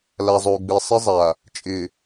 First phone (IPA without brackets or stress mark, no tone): l